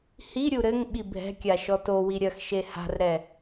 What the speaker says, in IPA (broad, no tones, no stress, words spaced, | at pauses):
hiɾʲu ɾɘŋ ɓibʱɛ̤kʲa ʃɔtowi ɾʲɐxʃe ha̤rɾɛ